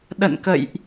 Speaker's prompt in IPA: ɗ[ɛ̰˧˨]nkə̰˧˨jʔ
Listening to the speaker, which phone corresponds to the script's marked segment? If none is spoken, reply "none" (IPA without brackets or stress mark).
ə̰˧˨